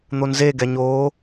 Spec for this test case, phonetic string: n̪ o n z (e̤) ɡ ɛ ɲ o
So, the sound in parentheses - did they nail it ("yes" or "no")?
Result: no